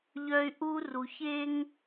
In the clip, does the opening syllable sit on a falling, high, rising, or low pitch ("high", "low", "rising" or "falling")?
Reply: high